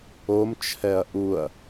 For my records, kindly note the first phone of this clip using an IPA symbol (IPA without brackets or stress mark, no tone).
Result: o